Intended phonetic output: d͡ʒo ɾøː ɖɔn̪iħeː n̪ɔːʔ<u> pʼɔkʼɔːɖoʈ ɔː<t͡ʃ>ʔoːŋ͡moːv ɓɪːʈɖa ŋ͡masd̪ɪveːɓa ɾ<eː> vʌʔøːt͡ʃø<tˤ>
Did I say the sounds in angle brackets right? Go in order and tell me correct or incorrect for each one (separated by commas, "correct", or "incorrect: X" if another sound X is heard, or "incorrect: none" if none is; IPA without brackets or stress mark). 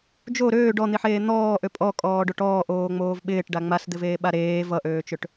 incorrect: ø, incorrect: none, correct, incorrect: ʈ